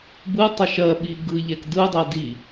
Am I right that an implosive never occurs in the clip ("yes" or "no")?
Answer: no